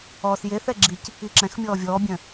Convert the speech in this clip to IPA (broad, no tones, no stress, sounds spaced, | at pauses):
ɔː s j e θ ɛ ɡ͡ǁ i c | i ǁ ɛ̃ x mʲ ɔː vʲ ɔː bʲ œ̃